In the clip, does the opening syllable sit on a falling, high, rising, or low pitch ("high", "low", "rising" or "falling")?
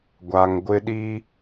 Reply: low